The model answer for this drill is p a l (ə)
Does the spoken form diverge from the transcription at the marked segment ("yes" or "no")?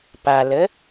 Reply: no